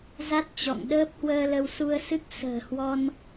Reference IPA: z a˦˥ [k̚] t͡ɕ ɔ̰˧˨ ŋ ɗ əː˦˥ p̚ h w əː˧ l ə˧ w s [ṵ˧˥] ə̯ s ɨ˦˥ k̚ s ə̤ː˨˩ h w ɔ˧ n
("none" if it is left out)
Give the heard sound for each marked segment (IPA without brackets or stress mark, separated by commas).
t̚, u˧